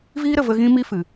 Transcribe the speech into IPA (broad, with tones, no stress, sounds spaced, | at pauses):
v iː˦ ɾ ə˨ v ə˧ ɣ ĩ˦ m i˦ f ɨ˨